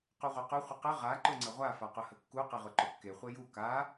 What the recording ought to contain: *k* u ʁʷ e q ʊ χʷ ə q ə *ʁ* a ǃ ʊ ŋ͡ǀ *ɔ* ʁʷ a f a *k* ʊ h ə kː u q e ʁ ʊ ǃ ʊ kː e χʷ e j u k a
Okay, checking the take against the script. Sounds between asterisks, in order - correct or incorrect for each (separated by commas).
incorrect, correct, incorrect, incorrect